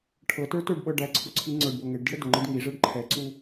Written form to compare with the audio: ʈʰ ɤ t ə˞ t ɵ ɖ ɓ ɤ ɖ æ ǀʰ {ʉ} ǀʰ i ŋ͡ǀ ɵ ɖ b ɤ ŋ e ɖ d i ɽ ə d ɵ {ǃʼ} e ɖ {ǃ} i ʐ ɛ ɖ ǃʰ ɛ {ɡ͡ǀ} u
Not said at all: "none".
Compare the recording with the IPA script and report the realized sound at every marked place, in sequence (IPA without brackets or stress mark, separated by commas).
u, ŋ͡ǃ, ŋ, ǀ